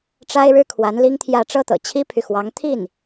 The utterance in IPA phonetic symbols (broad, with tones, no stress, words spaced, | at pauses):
ʈ͡ʂa˥ɪ̯ɻɻ̩˥ kʰwa˧˥nli˥ŋt̪ʰjä˥˧ ʈ͡ʂɤ˥˩t̪ɤ̰˨˩ t͡ɕʰi˥pʰy˨xwɑ˧˥ŋ t̪ʰi˥˩n